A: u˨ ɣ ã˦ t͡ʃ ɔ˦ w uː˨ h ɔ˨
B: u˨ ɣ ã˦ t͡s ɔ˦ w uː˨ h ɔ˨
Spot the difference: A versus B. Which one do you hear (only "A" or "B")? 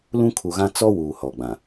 B